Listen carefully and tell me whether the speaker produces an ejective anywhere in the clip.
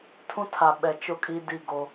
yes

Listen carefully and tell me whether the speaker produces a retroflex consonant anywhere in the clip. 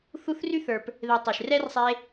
no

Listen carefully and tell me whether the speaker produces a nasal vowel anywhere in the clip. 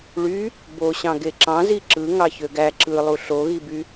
yes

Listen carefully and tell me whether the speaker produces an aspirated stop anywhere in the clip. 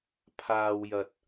yes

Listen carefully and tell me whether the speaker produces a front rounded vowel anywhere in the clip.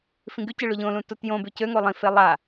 yes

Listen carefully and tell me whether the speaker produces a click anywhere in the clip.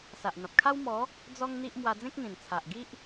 no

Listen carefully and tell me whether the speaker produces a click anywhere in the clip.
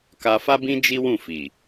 no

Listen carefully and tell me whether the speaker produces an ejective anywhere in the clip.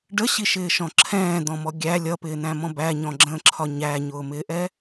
no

